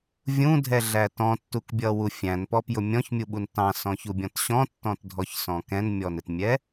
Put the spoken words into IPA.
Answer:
vʲũdʱɛɮæ tɔ̃tːukbʲʌwu fʲæ̃npɔpjʊ mʲɔ̃çmʲuɓun tɑ̃sɔ̃çubʲɔ̃t ɕɔ̃tːɔ̃tdʱɔçsɔ̃ kɛ̃nmʲɔnɪtmʲɛ

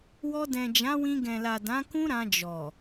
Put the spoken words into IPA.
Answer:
wɔ˧dɛ̃˨d͡ʒã˨˦wĩ˧ ɡɛ̃˨la˨ dã˨˦kũ˦ ɾã˧d͡ʒɔ˨

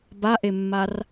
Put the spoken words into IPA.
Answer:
baʔemːar

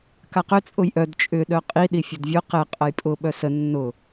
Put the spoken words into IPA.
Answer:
kaqʏ t͡sʼʊjʔœd t͡ʃʼʏ ɗœqʼi ɗifʲʊdvʲʊ qɛ qʼɐjpʼʊ ɓœsə nːʊ

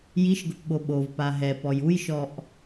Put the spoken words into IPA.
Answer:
jiʃɡʊpɓo ɓovpa ɦɛpɔj ujʃɔʔ

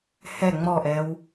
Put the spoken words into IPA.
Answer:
hɛ ŋ͡mɔʔɛw

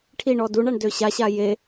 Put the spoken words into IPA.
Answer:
ʈʰiɳɔ duɳaɳ døɕaɕa je

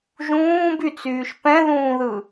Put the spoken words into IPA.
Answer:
ʒũːbyt͡syːʃ pɛ̃ðũːðɯ

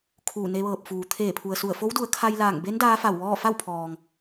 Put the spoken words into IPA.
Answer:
kʰuː˧˩ne˧ʋɤː˧˩p̚fuː˩˧ t̪ʰeː˧˩pʰu˩ə̯su˧˩ə̯ fo˧˥wdu˩˧ə̯ kʰa˧jlaː˧˩ŋbe˧˥n daː˧˥fa˧˩wʋɔː˥˨ fa˥˨wpʰɔː˩ŋ

